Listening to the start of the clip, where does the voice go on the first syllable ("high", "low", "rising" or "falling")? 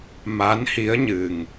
rising